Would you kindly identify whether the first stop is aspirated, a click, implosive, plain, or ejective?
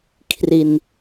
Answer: aspirated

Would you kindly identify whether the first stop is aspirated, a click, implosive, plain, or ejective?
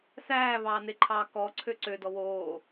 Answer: click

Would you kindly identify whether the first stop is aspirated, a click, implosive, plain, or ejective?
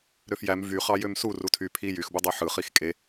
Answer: aspirated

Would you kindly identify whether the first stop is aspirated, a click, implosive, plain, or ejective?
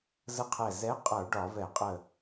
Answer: aspirated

